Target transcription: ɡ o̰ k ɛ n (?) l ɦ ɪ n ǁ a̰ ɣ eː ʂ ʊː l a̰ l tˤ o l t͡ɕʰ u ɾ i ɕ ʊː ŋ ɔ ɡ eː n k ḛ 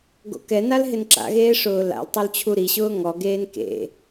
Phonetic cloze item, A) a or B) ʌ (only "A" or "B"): A